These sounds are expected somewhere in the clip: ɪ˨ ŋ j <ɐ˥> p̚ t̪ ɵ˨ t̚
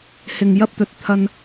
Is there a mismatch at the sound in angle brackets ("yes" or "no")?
no